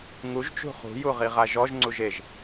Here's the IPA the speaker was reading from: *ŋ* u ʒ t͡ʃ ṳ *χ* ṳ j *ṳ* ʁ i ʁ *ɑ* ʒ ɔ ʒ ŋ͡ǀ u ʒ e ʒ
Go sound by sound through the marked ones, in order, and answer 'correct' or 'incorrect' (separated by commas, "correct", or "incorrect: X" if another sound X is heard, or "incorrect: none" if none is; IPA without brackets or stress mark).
correct, correct, incorrect: u, incorrect: a